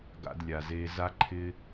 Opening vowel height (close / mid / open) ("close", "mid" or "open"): open